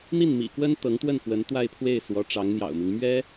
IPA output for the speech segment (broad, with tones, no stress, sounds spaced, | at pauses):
n̪ i˥˩ n m ḭ˨˩ k w ə˥ n t̪ ɤ˧˥ ŋ t̪ w ə˥˩ n x w ə˧˥ n t̪ w a˥˧ ɪ̯ pʰ w e˥˩ ɪ̯ s w ɔ˧˥ ʈ͡ʂ ɑ˧˥ ŋ n̪ j ɑ̰˨˩ ʊ̯ m i˦ ŋ m ɥ ɛ˥